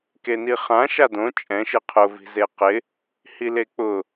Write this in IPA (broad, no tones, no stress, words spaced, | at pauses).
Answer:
keniχã ʃadõ t͡ʃʼɛ̃ ʃɪqʰʊ vi̤zeqɪ | hilek͡pʊ